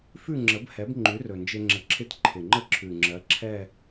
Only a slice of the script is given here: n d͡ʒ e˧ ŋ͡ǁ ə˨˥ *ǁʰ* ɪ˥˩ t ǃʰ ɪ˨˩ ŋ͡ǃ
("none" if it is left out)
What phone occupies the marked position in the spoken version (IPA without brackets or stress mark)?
ǁʰ